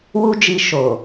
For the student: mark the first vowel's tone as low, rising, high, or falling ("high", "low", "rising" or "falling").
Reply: high